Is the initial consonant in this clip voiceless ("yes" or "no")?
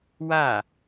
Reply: no